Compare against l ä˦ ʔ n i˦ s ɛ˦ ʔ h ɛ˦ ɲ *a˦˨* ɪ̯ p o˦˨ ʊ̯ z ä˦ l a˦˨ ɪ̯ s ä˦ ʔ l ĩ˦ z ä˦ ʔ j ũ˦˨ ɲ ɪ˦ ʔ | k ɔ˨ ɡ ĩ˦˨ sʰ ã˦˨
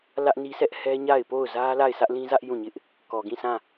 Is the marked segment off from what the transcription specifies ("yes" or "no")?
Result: no